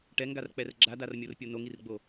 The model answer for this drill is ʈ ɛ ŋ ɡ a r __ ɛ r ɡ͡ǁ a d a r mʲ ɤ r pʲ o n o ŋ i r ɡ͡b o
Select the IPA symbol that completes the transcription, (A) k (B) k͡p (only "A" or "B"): B